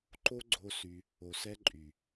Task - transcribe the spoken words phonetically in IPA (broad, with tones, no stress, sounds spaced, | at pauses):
ǃ o˦ ɡ͡ǀ o˧ s y˧ | o˨ s ɛ˦ ǃʼ y˨